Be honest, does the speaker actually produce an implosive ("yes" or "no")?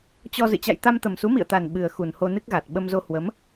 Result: yes